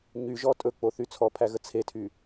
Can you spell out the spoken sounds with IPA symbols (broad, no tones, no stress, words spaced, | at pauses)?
ɲy ʒɔtʼɵk͡po θyt͡sʰɔpʰæ ɣət͡sʰetʰy